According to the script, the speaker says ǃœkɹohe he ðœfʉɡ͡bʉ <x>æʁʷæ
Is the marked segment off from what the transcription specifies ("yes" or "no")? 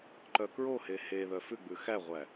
no